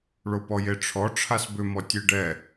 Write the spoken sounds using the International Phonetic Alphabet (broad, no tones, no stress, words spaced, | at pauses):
ɭopɔjeʈ͡ʂʰɔ ʈ͡ʂʰasbʏ mɔtʲeɖɛ